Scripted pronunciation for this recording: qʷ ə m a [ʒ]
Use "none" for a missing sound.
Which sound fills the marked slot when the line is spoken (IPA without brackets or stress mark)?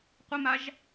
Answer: ʒ